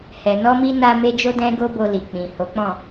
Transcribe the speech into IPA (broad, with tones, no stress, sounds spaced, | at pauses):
h ɛ˨ n ɔ˧ m i˧ n a˧ m e˧ d͡ʒ o˦ d ɛ̃˦ ɡ o˦ b o˧ l i˨ k͡p ĩ˨ h o˨˦ k͡p ɔ̃˦˨